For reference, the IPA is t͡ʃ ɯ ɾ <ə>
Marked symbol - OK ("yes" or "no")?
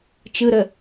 yes